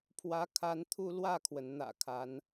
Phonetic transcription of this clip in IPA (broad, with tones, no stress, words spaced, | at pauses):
pʰwä˧˥kʰa˧˥nt̪ʰu˥˧ lwä˥˩kʰwə˩nn̪ä̰˨˩ kʰa˧˥n